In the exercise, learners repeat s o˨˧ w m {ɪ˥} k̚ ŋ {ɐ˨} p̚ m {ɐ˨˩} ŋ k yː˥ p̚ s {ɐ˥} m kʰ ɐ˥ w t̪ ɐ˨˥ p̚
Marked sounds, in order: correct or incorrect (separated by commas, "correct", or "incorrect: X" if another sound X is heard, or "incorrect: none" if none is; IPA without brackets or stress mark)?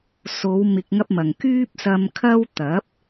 incorrect: ɪ˧, incorrect: ɐ˥, incorrect: ɐ˨, incorrect: ɐ˧